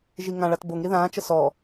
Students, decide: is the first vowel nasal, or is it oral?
oral